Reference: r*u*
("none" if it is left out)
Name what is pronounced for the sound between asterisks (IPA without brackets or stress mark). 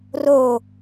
o